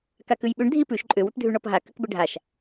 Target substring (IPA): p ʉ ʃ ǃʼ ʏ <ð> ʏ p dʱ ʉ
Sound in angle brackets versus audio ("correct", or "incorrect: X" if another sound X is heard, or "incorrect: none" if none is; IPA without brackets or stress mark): incorrect: w